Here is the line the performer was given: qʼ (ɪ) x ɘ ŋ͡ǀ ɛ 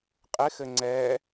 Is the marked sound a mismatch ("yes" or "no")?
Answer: no